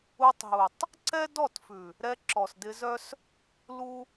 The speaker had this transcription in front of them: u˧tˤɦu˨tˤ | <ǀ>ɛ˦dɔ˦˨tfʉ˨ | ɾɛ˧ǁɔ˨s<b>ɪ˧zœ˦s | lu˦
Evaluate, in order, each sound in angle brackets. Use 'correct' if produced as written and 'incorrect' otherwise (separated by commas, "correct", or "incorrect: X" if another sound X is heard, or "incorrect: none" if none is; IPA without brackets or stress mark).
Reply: correct, incorrect: d